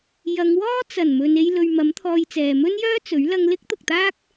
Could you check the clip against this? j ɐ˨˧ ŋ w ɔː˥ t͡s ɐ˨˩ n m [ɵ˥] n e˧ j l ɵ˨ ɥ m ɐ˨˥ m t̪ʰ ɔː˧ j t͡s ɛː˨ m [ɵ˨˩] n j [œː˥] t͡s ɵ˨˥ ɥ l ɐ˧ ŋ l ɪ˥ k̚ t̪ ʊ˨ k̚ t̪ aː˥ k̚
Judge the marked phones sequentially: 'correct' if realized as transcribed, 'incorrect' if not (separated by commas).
incorrect, incorrect, correct